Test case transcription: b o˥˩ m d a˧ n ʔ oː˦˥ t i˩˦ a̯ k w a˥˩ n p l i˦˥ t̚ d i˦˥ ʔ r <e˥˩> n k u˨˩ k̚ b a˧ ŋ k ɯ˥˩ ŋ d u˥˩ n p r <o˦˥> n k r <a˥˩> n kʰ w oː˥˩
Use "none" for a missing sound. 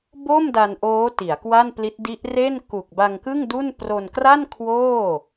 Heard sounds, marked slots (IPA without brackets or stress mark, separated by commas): e˥˩, o˧, a˥˩